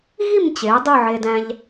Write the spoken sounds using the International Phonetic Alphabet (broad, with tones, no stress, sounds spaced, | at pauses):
ɣ i˥˧ m t͡ɕ e˩˧ dˤ ɯ˥˧ ʕ e˧ d æ̃˧ ʎ